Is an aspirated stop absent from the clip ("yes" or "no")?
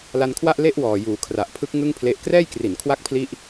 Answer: no